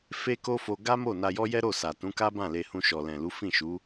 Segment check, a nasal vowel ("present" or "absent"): present